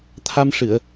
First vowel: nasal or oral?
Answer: oral